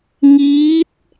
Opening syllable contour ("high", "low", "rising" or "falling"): rising